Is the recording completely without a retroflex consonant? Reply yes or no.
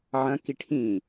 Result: no